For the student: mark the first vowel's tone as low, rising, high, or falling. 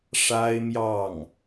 high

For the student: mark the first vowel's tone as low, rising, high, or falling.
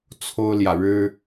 high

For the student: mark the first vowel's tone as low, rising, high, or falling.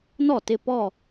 falling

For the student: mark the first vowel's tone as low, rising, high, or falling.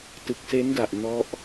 low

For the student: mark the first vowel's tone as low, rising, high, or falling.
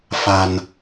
low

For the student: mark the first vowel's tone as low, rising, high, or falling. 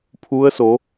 rising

